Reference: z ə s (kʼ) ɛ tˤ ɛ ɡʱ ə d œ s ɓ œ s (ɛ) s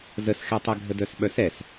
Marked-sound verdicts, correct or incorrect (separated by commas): incorrect, correct